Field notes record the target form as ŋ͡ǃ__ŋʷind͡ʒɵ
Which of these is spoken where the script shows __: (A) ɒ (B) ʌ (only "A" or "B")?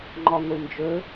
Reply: A